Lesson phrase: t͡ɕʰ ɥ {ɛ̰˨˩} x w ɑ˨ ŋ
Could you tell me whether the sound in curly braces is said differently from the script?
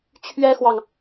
yes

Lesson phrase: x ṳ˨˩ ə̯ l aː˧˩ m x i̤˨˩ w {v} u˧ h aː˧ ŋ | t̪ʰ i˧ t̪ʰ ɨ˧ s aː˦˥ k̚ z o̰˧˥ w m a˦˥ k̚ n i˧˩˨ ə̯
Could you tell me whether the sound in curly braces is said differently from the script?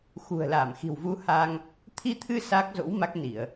no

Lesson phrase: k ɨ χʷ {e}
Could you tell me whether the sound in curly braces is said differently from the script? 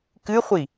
yes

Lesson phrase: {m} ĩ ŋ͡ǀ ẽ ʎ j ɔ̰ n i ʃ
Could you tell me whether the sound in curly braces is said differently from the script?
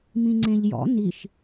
no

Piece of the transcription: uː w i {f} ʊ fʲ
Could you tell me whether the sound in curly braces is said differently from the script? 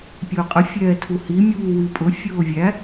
yes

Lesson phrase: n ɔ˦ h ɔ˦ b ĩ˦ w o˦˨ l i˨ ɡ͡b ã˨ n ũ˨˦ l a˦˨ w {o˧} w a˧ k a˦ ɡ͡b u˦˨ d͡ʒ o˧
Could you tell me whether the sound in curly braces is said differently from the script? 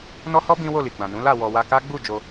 yes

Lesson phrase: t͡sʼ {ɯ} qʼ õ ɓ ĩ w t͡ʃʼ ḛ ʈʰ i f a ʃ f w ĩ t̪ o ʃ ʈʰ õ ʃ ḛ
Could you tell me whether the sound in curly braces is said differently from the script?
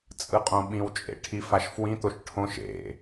no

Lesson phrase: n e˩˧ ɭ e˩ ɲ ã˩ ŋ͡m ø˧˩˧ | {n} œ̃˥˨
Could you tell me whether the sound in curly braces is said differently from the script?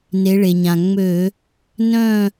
no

